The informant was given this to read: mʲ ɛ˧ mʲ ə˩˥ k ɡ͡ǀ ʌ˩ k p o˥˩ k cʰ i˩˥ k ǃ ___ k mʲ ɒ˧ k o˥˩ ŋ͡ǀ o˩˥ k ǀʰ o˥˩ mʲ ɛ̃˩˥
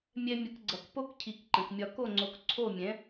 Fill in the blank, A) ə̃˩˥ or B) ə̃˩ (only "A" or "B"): B